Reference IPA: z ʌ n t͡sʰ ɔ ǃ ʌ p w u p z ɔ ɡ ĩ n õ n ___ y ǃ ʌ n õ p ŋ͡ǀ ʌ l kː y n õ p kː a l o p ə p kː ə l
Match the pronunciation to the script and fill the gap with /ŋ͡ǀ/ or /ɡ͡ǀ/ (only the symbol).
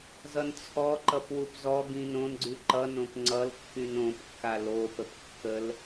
ɡ͡ǀ